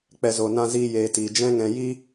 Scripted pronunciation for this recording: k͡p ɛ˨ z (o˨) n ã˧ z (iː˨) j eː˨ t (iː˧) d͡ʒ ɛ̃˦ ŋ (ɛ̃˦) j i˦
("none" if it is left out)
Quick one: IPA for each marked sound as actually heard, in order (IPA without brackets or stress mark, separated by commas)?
o˨, iː˧, iː˨, ɛ̃˧